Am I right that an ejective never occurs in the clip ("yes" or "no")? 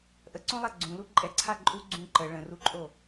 no